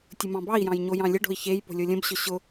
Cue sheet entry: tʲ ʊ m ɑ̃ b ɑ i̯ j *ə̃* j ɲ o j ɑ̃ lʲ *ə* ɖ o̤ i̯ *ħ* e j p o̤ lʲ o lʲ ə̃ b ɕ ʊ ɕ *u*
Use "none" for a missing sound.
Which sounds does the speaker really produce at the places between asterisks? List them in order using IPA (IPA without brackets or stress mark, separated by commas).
ɑ̃, ə, ç, ʊ